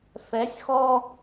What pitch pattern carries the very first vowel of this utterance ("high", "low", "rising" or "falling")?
rising